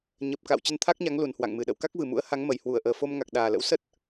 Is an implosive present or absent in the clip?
present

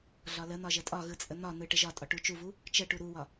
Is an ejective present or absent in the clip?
present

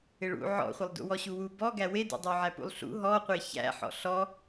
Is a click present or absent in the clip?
absent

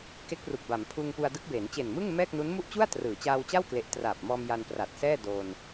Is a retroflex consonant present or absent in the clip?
absent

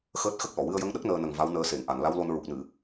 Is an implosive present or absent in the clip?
present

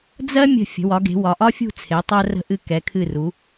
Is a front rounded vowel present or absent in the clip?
absent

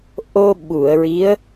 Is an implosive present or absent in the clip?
present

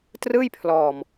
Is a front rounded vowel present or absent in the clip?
absent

